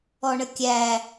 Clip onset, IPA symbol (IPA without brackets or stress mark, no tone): ɔ